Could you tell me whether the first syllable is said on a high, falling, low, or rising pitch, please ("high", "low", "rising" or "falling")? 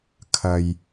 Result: low